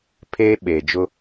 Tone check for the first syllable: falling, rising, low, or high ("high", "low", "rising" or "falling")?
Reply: high